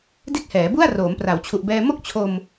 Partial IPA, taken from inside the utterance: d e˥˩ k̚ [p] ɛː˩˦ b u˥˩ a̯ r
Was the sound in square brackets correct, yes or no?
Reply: no